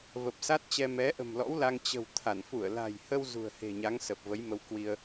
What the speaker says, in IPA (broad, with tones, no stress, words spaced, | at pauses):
və˨˩p̚sa˦˥t̚t͡ɕɛ˧ mɛ˨˦ʔə̤˨˩mlɔ̰˧˥wla˧ŋ t͡ɕə̤˨˩w t̪ʰa˧˩n fu˧˩ə̯la̤˨˩jhə˧w zṳ˨˩ə̯he̤˨˩ɲa˨˦ŋ sə˨˩p̚və˨˦jmə˧w kwi˧ə̯